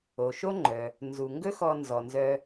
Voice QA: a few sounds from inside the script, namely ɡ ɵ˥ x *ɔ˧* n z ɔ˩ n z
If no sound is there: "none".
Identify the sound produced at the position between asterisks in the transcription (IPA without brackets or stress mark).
ɔ˧